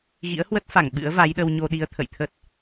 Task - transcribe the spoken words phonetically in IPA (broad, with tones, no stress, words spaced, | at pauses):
ɣḭ˧˥ə̯hwə˦˥t̚fa˧˩ŋ ɓɨ̰˧˥ə̯va˨˦jɗə˧w ɲo˧ɗi˨˦ə̯ t̪ʰə̰˧˨jt̪ʰə˦˥t̚